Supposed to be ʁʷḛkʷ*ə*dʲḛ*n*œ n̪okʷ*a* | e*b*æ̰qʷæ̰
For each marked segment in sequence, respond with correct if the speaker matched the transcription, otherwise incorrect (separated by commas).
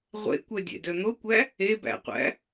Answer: incorrect, incorrect, incorrect, correct